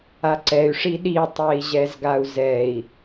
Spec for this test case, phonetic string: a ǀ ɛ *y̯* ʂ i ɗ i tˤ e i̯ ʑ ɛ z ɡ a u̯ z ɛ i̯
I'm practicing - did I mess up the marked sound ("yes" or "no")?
no